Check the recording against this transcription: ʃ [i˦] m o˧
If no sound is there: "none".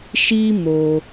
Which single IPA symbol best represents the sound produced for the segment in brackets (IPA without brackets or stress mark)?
i˦